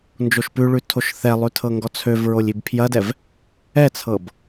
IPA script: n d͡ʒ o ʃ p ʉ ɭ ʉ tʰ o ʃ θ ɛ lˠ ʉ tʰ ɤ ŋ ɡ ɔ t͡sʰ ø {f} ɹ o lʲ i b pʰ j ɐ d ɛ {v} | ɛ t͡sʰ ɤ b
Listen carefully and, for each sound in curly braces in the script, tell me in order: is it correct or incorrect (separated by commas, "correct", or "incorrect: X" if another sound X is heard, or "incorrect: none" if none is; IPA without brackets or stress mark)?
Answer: incorrect: v, correct